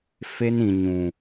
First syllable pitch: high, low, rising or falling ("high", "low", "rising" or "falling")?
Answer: high